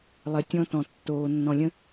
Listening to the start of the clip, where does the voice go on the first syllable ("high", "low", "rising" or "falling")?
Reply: low